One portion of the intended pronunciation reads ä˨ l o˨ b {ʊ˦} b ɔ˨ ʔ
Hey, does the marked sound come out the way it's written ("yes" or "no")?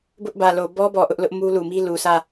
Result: no